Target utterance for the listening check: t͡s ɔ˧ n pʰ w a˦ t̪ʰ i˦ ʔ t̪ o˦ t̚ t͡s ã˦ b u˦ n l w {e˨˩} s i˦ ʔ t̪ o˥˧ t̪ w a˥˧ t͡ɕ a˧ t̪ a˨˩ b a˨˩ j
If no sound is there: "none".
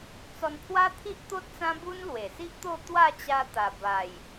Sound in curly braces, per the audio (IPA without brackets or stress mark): e˨˩